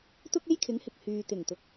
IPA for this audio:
t̪ʊ˥k̚e˥jkʰɪ˨˥ŋhɪ˨k̚ hyː˨t̪ɪ˨˩ŋt̪ʊ˨k̚

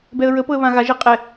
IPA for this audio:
bɛə̯ɹəpɤə̯ βãɣaʒɛ qʼɛ

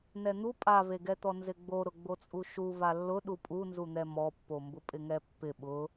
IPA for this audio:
nɛn̪u pʼaveɡɛt̪ɔ nzɪɡ͡bo ɾʊɡ͡bot͡sʼuʃu valːʊ ɗupʼu nzun̪ɛmɔpːo mbʊpʼɪŋɛpːɪ ɓʊ

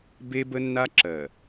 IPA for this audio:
be˦bə˦nːa˦ ǁɜ˨

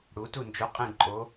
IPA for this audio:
ɽu˩˧tu˦˨nd͡ʒo˨˥qʼĩ˦˨ ǃʼo˨˥

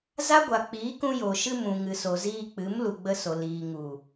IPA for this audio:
za˦ɡʷa˨k͡piː˨˦ kũ˧jo˨ʃɨ˧mũ˨ ŋɨ˨so˨ziː˧ k͡pɨ˨˦mlu˨ɡ͡bə˧so˨ liː˨ŋu˨

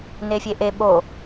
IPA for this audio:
nefʲeʔe ɓo

